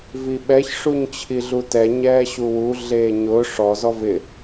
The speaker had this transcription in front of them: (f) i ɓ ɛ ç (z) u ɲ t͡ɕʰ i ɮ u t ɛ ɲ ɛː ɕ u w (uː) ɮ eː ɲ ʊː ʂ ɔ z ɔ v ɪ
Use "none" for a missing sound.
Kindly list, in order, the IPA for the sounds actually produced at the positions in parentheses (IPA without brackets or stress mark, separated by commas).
v, ʂ, u